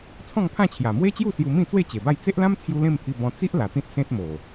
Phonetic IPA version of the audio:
t͡sʰɔ̃˥˧ŋpʰã˥˧t͡ɕʰja˨˩ mwe˦t͡ɕju˥˧ sju˧mĩ˥˧t͡swe˥˧ t͡ɕe˨˩ba˥˧j t͡se˦ʔlã˦mt͡sʰju˧ lẽ˥˧mt̪ʰi˧bɔ̃˧ t͡si˦ʔ la˨˩t̪ĩ˦t̚ sẽ˦t̚mo˨˩

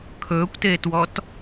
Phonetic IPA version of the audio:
kʰɵːkʷteːtwɔt

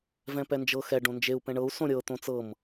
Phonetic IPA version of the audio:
vɛ̃pɛnd͡ʒɤ xɛ ɖõnd͡ʒeu̯ pɛ̃ɳɤu̯ sõɾʲɤ t̪õt͡sɤm

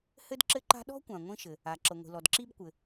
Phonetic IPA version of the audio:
hɘ˥dǁɘ˥ǃa̤˥ ɗɔ̤˥kʷã˩ ŋʷĩ˥ʃɘ˩ | a˩ ǁɤ˩ŋʷi̤˩lɔ˩d ǁi˥bkʷɘ˩

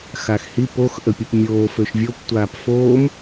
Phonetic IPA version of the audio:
xaxhip ox ʔəpʲəpmʲoː føʃvʲop tʷaːpfoːm

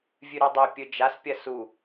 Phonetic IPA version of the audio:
vʲʉɾodˤe pʲɵd͡ʒaspʲɐ su

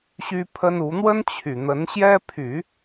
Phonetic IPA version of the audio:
ɕy˥pʰə˥n u˧˥ n̪wə˥n t͡ɕʰy˨˩ n̪ə˧˥nɕjɛ˥ pʰy˨˩˦

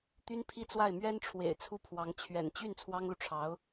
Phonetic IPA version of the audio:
t̪y˥npʰi˥˧t͡swa˥˩ɪ̯ mɥɛ˥nʈ͡ʂʰwḛ˨˩ɪ̯ t͡sʰu˥˩pʰwɑ˧˥ŋ t͡ɕʰɥɛ̰˨˩n t͡ɕy˥˩n t͡sʰwɑ˥ŋlu˨ʈ͡ʂʰɑ˧˥ʊ̯

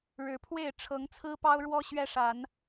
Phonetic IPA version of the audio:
ɻɻ̩˨˦pʰwe˥˨ɪ̯ ʈ͡ʂʰɤ˨˦ŋt͡sʰɹ̩˦pɑ˦ʊ̯ɻwɔ˦ ɕɥɛ˦ʂa˨˦n

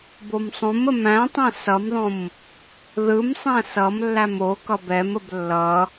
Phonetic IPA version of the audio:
bomsˤõmə mæ̃tˤæ̃ sʌmðˤõm | ðɯmsˤæ̃ sʌmlːæm okʌb ɛməb lːʌ

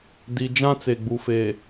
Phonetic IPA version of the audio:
di˨ d͡ʒã˦t͡se˨ ɡ͡bu˨fe˨

